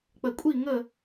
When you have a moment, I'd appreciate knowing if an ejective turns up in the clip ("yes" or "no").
yes